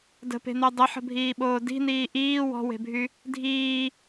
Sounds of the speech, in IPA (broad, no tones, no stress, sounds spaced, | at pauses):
d ə̤ p e̤ n̪ œ dˤ ə ħ ə̤ bʱ iː ɓ oː d i̤ n iː ʔ iː w ɔ̤ w e̤ bʱ y | dʱ iː